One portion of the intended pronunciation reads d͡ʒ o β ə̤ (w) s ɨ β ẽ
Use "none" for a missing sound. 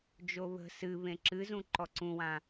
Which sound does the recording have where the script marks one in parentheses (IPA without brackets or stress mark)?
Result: none